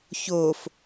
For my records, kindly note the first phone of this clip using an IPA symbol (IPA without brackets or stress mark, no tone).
ç